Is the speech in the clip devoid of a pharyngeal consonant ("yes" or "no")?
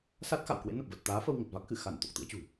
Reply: yes